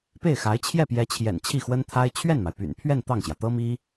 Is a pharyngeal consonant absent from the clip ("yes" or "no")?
yes